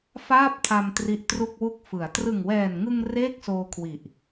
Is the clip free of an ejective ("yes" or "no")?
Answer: yes